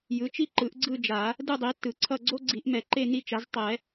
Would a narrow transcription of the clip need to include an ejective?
no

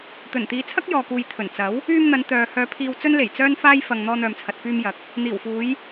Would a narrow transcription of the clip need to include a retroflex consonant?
no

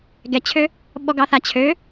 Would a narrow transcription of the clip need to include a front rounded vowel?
yes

